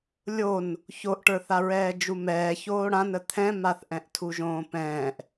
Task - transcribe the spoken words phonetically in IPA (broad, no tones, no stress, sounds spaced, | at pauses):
lʲ o n | ç o ʔ ʈ ə˞ θ a ɹ ɛː d͡ʒ u m ɛː ç oː ɽ ã n ə t̪ʰ ɛ̃ m a θ ʔ ɛ̃ ʔ tʰ u ʒ õː p ɛ̃ː ʔ